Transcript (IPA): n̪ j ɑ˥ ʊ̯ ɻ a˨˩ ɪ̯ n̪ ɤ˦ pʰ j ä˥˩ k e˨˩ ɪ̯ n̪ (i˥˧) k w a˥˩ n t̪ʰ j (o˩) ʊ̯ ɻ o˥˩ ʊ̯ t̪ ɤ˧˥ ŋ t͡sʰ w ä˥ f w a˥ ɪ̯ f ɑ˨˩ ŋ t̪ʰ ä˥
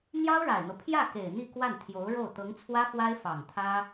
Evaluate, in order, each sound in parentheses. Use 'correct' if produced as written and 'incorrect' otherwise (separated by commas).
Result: correct, incorrect